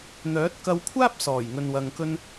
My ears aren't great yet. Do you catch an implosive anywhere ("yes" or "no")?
no